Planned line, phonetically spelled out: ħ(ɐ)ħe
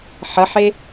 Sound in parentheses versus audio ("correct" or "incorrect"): correct